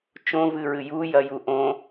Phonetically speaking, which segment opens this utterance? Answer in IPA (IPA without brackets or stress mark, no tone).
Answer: t͡ʃ